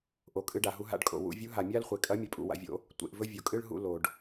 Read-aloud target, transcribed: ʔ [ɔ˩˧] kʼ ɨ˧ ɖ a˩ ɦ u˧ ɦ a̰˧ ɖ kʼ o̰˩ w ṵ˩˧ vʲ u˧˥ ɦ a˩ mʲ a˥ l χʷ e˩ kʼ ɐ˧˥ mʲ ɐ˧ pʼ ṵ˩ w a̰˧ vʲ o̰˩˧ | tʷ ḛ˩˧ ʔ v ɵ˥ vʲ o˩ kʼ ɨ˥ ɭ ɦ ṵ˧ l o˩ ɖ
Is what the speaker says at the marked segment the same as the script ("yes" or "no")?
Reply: no